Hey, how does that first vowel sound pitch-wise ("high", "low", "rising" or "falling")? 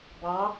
rising